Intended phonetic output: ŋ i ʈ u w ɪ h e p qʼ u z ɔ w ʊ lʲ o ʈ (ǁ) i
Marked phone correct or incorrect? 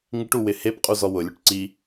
incorrect